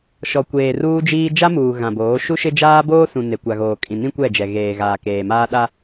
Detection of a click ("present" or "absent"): absent